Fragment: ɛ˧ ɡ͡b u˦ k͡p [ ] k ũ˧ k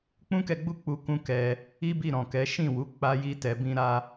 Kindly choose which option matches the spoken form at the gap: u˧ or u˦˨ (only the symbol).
u˧